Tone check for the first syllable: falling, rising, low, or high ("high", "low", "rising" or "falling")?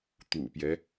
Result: low